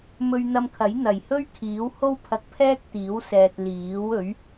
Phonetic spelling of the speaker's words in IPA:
mɵ˧ɥn̪ɐ˧mkʰɐ˨˥j n̪ɐ˨˩jhɵ˥ɥ kʰiː˨˥who˥w pʰɐ˧k̚pʰɛː˥k̚t̪iː˨˥wsɛː˨t̚ liː˨˥w ɵ˨˥ɥ

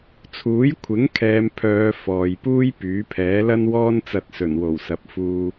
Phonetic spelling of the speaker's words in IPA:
t͡sʰuː˨˥jkʷʰɪ˨˥ŋkʰɛː˨˧mpʰœː˨˧ fɔː˨jpuː˥j pyː˨˥pʰɛː˨˥lɐ˥nwɔː˥n t͡sɐ˧t̚sɵ˨˩nwo˨˩wsɐ˨˥p̚ fuː˧

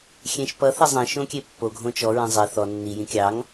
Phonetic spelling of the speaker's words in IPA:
xʲẽʃpʌ θɛzˤẽ ʃõkʲepːo ɡʱõt͡ʃɔ ɹẽzˤe θɔ nːi jĩkʲɑŋ

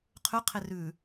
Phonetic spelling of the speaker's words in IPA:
qʰʉ qʰerʉ

